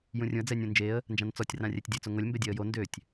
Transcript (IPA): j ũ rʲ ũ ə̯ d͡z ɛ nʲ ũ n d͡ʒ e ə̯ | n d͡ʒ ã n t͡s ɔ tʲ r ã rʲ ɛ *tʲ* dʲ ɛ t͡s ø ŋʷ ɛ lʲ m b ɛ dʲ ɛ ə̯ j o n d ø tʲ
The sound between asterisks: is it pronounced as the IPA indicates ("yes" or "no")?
yes